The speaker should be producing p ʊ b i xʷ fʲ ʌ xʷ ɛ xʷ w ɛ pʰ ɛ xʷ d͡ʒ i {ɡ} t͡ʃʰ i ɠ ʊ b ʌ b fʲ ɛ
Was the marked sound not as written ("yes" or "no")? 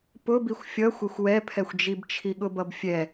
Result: yes